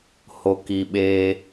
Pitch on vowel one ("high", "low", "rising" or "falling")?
low